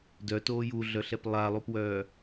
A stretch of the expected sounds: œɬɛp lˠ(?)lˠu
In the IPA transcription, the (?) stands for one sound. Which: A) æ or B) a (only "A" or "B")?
B